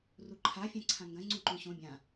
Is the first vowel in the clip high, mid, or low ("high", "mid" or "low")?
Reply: high